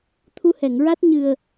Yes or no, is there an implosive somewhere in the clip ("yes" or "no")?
no